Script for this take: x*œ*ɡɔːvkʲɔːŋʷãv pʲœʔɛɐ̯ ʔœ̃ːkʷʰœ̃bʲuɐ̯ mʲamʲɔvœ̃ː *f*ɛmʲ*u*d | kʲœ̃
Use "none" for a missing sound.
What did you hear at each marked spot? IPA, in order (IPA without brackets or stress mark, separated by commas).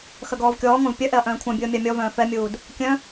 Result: œ, f, uː